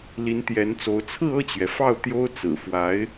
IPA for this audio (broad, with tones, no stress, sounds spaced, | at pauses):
l i˧˥ n t̪ j ɛ˧˥ n t͡s o˧˥ ʊ̯ t͡sʰ ɹ̩˥˧ ɤ˥˩ t͡ɕ ɥ ɛ˩ f ɑ˥˩ ʊ̯ t̪ j o˥ ʊ̯ t͡s ɹ̩˨˩ f w a˧˥ ɪ̯